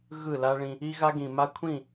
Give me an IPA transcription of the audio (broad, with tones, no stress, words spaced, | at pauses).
ɣɯ˦˨la˦ɭĩ˦ | i˦ɣa˦ɡĩ˨ma˦ kʷʰĩ˦˨